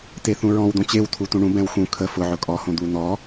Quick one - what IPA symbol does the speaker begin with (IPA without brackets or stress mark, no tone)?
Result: t